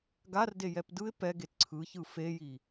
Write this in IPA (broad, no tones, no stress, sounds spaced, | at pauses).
ɡ a r d e j ɛ p d ɯ ɪ̯ p ɛ ɡ e t ǀʰ ɯ ç ɯ f e j i